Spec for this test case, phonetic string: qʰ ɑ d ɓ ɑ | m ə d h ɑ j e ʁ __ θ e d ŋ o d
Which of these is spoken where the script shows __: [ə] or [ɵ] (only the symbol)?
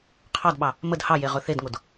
ɵ